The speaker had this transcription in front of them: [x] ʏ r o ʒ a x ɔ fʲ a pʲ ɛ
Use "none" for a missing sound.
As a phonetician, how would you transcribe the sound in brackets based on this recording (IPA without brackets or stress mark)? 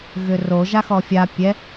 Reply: ɣ